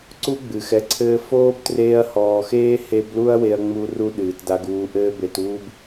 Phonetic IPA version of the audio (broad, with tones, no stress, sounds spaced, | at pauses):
ǀ u˥ ɡ͡b ɨ˩ x ɛ˨ ǀʰ ɘː˦ f oː˥ b t r eː˦ ɐ̯ h ɔː˨ x eː˥ h e˦ b l u˥ ɐ̯ w e˦ ɐ̯ ŋ͡m u˦ r u˦ ɗ ɨː˩ t d a˨ ɡ uː˨ ʔ ɘː˦ b e˨ t uː˦ b